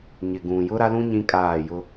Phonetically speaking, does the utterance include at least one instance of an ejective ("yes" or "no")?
yes